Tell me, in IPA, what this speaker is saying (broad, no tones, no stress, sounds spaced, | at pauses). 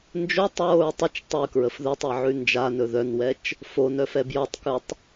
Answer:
n d͡ʒ o tˤ ɹ o ɹ tˤ ə t͡ʃ tˤ ʉ k ɹ ə f ð ɵ tˤ ɛ ʕ ʉ n d͡ʒ a n ɵ ð œ n w ɛ t͡ʃ | f o n œ f ɛ b j ɔ tˤ k ʉ tˤ